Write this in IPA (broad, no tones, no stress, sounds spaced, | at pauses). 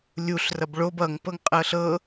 lʲ u ɬ r ʌ b ɭ o b ʌ ŋ p ɤ ŋ qʼ ɤ ɬ ɤ